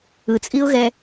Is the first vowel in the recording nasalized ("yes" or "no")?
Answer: no